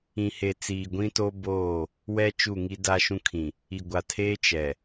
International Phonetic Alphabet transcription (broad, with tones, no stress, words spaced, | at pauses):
ĩ˨he˨ t͡siː˨ɡʷĩ˦to˦ boː˦˨ | wɛ˦ t͡ʃu˦˨ŋi˦ da˦ʃũ˦kʰĩ˨ | i˨ɡʷa˨tʰeː˦ t͡ʃɛ˨